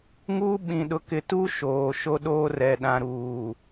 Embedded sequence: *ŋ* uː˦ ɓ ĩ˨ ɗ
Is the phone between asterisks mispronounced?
no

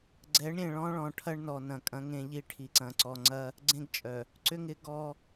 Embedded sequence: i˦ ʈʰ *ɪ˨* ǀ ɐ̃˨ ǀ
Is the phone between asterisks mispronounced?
yes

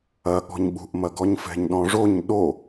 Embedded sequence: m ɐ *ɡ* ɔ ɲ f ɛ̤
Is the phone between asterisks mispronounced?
no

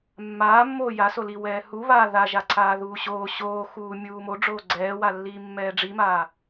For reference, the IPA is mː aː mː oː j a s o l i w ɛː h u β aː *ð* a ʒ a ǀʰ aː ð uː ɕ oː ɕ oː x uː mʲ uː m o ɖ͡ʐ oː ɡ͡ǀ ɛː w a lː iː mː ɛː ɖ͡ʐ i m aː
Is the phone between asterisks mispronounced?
no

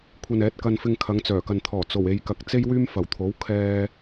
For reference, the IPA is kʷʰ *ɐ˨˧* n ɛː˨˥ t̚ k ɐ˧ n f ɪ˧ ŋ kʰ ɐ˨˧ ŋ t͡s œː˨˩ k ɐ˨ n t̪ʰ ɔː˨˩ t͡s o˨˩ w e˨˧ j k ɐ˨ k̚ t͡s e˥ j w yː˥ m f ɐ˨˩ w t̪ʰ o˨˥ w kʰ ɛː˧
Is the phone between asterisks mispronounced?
yes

